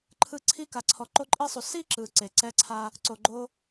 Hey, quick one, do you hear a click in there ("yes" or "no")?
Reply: yes